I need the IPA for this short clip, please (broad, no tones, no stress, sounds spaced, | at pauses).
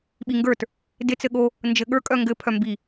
ɓ i ŋ ɡ ə˞ t | d ɪ t͡s ɘ ɠ o | n d͡ʒ ɘ ɠ ə˞ kʼ œ ŋ ɡ ɘ pʰ œ m b i